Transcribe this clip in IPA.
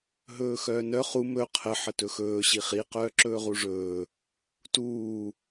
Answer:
ɦ ɵː x œː n œ χ u m ɵ qʰ ə ħ ə t ɵ x ɵː ɕ i χ i q œː ǁ ɵː ʁ u ʐ ɵː | t uː

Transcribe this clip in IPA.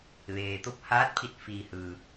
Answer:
ʋ eː˩ t̪ o˧ p̚ h aː˧˥ t̚ pʰ i˧˩ t̚ f iː˩ h ɯː˩

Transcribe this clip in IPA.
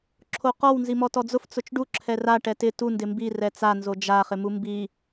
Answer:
ǁʰ o q ɔ w n z i m ɔ t ɔ d͡z ʊ f t͡s ʊ t͡ʃ ɖ u ǁʰ ɛ r a ʈ ɛ t ɪ t u n d ɪ m b i r ɛ t͡s a n z o d͡ʒ a χ ɪ m u m b i

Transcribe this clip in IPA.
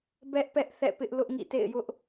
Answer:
b ɛ˦ ʔ p ɛ˦ ʔ θ ɛ̰˦˨ p ɪ˦ ʔ l ʊ˦ ʔ ŋ ḭ˦˨ t ḛ˦˨ ɪ̯ j ʊ˦ ʔ

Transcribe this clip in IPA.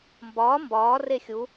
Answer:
m b ɒː m b ɒː r e xʲ u

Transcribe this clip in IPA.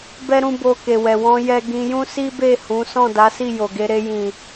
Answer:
b ɛ˦ ɾ ũ˦ b o˧ k e˨ w ɛ˨ w ɔ̃˧ j ɛ˦ ɡ ĩ˧ j ũ˦ s i˦ b e˦˨ h ũ˨˦ s ɔ̃˦˨ d a˨˦ s i˦˨ j o˨ ɡ e˧ ɾ e˧ j ĩ˨

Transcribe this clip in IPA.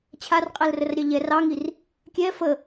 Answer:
t͡ɕʰ a r qʼ ɛ l r ə r ɾʲ ɑ ʎ ɛ r ɑ ŋ i r | kʲ ɛ f ə

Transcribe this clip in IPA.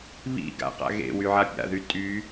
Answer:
β ḭ ɡ a̰ q a̰ ɣ ḛ w y ʕ a pʲ a̰ ð y tʼ y

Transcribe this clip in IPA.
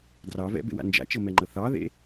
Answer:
d r ɑ v ɛ̰ b ḛ w a̰ n d͡ʒ a̰ t͡ʃ ɤ m ɛ ŋ͡ǃ ɤ θ ɑ ð ḛ

